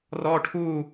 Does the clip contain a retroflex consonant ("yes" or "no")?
yes